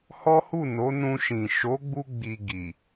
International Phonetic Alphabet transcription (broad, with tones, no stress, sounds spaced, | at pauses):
h ɔ˦ h u˦˨ n o˨˦ n ũ˧ ʃ ĩ˨ ʃ o˨˦ ɡ͡b u˧ ɡ͡b i˧ ɡ i˨